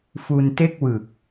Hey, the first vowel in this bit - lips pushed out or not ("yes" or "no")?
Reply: yes